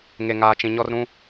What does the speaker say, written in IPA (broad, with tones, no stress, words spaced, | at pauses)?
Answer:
ŋe˨ŋaː˨t͡ʃĩ˨ɲɔ˦r ɾũ˦